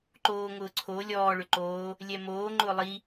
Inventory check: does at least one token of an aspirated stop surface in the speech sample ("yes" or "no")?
yes